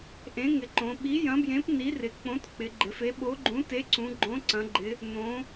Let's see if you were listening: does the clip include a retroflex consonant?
no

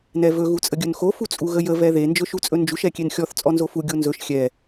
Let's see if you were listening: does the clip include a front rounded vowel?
no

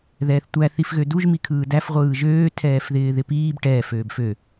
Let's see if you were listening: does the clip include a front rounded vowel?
yes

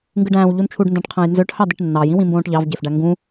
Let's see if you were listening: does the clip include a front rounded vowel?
yes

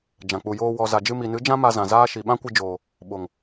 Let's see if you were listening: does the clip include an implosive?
yes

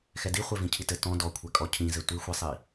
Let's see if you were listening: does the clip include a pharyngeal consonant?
no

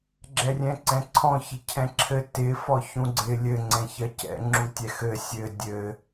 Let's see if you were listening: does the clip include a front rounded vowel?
no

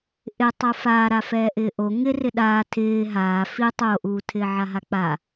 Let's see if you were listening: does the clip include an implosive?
yes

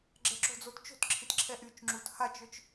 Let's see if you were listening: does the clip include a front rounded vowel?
yes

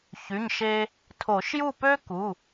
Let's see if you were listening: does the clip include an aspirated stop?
yes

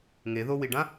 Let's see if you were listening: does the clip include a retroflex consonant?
yes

